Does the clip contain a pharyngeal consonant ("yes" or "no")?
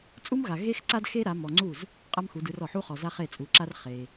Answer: yes